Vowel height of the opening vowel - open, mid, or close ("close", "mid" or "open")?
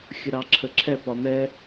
close